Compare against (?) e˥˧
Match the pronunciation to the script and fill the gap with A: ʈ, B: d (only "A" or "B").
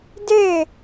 B